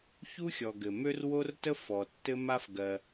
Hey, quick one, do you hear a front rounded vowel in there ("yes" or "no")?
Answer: yes